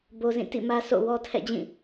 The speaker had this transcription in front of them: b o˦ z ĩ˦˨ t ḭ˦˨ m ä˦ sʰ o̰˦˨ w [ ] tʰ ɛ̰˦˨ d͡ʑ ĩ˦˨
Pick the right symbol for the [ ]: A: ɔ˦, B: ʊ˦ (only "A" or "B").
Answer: A